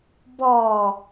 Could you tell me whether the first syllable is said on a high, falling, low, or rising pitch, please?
low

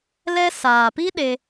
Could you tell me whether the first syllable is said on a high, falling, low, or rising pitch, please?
high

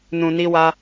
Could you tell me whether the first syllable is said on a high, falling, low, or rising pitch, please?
low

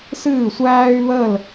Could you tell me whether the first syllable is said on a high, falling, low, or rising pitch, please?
falling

